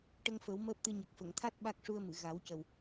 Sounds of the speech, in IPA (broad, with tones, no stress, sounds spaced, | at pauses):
ʈ ə˧ ŋ f ə˨˩˦ w m əː˦˥ p̚ t̪ ɨ˧ ɲ ə˨˩ k̚ f ə˨˩˨ ŋ t̪ʰ a˦˥ t̚ ɓ a˦˥ k̚ ʂ u˧ ə̯ m ɨ˨˩˨ ɣ a˨˩˦ w c ə˨˩ w